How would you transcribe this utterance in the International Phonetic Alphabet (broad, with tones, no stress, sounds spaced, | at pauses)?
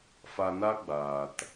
f a˧ n a˦ ɡ͡b aː˨ t